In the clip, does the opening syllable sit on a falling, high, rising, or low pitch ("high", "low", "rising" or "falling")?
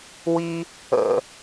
high